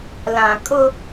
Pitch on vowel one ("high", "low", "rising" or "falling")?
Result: low